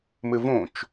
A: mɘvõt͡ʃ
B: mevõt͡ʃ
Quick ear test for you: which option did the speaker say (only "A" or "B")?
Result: A